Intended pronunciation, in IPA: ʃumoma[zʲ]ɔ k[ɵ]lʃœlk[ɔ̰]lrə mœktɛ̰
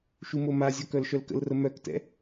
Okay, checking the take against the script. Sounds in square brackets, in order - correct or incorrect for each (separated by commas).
correct, incorrect, incorrect